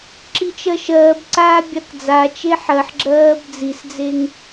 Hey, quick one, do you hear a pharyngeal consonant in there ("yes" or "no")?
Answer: yes